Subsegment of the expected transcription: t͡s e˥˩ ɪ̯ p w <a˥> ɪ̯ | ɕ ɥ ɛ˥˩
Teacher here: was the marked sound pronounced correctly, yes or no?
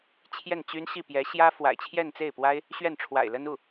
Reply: yes